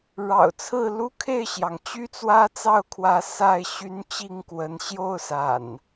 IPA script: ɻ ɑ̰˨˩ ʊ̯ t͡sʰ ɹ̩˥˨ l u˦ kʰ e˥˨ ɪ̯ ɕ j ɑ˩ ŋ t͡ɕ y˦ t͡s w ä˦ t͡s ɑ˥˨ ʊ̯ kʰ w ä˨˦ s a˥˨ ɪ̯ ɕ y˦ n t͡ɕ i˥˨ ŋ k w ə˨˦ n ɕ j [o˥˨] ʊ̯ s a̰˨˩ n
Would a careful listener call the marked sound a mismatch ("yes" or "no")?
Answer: no